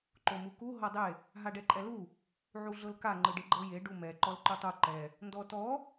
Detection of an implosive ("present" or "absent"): absent